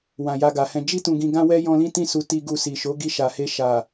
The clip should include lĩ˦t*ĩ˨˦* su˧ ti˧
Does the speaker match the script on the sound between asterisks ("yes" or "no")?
no